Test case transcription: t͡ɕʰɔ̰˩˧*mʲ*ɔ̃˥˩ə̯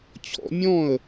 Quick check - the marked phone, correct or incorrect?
correct